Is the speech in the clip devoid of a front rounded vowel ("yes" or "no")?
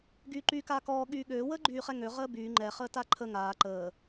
no